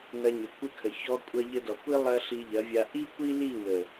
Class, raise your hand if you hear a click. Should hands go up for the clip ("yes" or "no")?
no